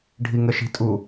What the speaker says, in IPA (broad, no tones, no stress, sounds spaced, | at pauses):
ɖʱ i ŋ ə ʃ i̤ tʼ u